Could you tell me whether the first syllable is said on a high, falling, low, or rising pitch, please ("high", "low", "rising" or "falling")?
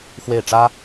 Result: falling